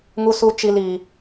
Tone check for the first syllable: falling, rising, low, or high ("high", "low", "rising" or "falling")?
high